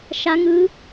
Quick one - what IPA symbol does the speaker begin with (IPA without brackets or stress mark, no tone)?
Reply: ʃ